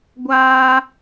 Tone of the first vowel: high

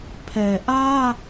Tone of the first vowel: low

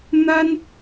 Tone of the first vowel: high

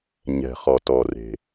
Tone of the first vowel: low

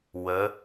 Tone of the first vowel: rising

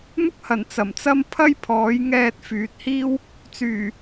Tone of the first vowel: high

